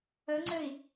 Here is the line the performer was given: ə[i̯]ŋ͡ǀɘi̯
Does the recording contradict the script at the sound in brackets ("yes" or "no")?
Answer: yes